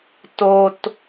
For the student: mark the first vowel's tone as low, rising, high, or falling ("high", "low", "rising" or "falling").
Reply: high